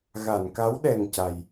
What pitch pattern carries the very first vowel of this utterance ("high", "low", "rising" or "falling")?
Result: low